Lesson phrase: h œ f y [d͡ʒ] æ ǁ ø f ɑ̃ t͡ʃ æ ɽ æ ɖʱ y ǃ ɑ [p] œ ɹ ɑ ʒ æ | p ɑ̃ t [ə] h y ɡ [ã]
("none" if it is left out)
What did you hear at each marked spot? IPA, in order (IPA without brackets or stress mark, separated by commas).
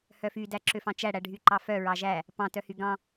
d, f, œ, ɑ̃